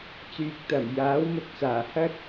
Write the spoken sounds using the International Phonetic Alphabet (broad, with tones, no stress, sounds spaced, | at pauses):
t͡s yː˨ k̚ t̪ ɐ˨˩ m j aː˨˥ w m ʊ˨ k̚ t͡s aː˨˩ h ɐ˥ t̚